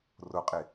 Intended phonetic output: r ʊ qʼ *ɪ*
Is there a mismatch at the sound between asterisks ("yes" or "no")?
no